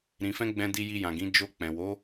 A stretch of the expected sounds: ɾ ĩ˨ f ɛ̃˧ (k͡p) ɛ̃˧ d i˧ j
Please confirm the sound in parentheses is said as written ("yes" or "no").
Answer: no